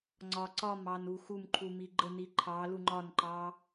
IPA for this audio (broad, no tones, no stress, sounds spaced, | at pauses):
ŋ͡ǀ ɒ ǀ ɒ m ɑ n u x u m ǃʰ u m i ɡ͡ǃ ə n i ǃʰ ɑ l u ŋ͡ǃ ɒ n ǃ ɑ